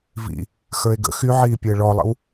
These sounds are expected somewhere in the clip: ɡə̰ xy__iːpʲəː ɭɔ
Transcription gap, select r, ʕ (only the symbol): ʕ